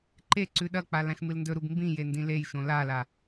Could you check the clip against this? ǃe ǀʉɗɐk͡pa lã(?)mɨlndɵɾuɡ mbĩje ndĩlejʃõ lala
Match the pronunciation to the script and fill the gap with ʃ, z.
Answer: ʃ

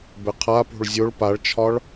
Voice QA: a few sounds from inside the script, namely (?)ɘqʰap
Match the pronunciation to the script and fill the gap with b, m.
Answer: b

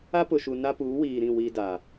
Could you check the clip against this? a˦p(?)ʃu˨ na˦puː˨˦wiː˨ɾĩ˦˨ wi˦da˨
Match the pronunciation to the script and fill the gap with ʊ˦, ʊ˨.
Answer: ʊ˨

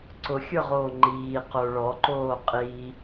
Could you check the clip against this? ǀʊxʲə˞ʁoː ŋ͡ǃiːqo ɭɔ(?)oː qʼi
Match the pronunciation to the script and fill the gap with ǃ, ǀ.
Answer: ǃ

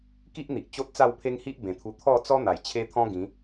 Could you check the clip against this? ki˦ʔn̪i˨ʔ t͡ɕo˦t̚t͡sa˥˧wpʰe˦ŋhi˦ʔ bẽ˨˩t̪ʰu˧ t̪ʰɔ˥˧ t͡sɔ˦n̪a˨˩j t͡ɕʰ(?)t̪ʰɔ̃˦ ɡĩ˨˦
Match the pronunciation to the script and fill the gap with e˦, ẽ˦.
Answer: e˦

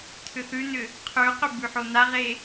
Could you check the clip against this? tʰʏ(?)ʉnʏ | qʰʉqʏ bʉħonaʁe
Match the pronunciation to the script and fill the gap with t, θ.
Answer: θ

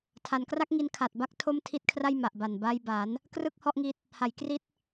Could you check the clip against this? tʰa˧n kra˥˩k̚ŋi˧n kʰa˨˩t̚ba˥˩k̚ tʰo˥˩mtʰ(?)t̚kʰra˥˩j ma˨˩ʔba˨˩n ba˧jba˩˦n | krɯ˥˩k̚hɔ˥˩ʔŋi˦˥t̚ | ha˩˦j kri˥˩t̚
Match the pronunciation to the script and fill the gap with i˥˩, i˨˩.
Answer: i˥˩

